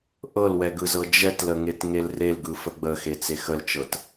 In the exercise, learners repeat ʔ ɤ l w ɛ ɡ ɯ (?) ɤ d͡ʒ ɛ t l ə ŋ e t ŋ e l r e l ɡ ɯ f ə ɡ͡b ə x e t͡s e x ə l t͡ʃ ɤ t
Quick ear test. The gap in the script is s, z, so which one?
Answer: z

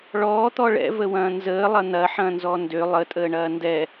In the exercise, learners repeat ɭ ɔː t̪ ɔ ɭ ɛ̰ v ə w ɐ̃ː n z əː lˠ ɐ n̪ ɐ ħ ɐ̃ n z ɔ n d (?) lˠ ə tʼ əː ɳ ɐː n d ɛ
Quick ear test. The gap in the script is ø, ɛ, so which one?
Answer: ø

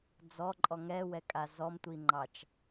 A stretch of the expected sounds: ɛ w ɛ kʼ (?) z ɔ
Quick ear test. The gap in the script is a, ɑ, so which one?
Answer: a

